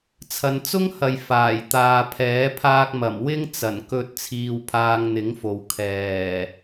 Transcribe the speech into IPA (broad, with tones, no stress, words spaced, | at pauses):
t͡sʰɐ˨nt͡sʊ˥ŋhɐ˨j faː˨˩jt̪aː˨pʰɛː˨˥ pʰaː˧k̚mɐ˨˩m wɪ˥ŋt͡sɐ˨˩nkɵ˧t̚ t͡sʰiː˧wpʰaː˧ŋn̪ɪ˨˥ŋfo˨w kʰɛː˨˩